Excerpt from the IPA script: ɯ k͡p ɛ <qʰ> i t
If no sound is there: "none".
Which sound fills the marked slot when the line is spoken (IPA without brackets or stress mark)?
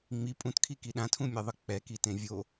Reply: k